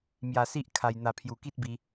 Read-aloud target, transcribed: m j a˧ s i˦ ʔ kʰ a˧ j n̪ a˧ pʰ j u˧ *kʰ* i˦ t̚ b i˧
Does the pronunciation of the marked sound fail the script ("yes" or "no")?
yes